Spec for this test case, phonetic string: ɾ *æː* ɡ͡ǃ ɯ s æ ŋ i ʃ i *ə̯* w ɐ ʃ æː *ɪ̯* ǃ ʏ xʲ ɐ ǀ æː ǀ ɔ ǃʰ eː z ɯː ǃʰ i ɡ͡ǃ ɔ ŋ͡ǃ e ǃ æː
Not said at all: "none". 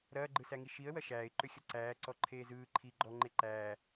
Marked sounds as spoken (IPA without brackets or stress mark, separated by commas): ɐː, ə̯, ɪ̯